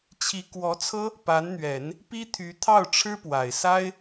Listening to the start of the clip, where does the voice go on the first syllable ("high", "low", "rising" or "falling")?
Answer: rising